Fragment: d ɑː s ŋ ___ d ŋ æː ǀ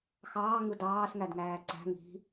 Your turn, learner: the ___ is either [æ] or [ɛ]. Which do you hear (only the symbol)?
æ